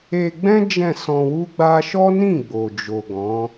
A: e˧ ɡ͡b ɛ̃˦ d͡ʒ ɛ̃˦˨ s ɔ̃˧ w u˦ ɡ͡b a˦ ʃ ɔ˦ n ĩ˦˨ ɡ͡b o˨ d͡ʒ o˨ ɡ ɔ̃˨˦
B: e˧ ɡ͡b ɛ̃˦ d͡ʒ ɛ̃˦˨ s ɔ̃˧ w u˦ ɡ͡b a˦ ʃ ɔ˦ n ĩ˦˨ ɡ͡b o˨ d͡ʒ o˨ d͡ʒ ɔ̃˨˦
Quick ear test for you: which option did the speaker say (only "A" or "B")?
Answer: A